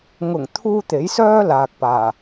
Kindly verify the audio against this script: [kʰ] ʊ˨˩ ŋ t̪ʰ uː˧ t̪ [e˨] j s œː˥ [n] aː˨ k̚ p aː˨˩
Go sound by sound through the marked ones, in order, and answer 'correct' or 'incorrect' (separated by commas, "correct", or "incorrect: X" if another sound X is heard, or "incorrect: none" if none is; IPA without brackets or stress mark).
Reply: incorrect: ŋ, incorrect: e˨˥, incorrect: l